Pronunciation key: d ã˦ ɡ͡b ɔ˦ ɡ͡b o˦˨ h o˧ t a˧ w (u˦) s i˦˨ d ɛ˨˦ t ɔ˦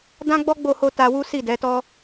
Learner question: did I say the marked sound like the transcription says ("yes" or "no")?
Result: yes